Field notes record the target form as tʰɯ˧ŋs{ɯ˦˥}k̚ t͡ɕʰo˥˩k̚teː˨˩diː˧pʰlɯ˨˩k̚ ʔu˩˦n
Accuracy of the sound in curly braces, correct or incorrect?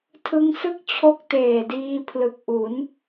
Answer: incorrect: ɯ˥˩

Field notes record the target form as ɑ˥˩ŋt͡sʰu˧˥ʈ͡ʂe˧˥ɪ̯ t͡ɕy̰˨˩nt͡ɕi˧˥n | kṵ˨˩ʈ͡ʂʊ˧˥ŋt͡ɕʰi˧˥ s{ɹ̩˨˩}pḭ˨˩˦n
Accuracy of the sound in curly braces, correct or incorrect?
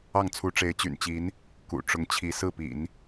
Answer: incorrect: ɹ̩˥˩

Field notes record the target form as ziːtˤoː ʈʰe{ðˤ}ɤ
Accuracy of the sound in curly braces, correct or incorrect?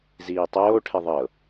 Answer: correct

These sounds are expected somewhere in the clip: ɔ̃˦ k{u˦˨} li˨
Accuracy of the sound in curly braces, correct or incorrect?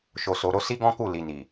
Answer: correct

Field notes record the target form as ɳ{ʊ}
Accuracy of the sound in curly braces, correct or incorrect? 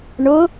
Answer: correct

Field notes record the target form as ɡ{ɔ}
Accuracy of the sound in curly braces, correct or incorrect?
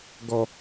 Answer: correct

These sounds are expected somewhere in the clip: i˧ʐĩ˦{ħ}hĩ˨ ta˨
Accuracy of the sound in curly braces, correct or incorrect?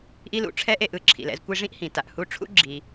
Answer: incorrect: ʔ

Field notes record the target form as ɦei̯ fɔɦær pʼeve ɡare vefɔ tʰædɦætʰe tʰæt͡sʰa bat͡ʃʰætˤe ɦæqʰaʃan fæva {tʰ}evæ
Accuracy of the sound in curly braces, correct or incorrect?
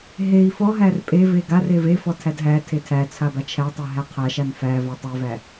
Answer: incorrect: tˤ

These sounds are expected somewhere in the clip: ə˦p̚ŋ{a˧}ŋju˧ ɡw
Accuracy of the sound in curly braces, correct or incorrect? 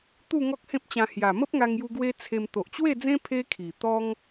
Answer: correct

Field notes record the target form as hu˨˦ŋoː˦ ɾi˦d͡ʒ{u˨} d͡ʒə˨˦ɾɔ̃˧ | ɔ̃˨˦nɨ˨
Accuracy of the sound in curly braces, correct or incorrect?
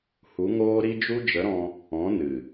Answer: incorrect: u˦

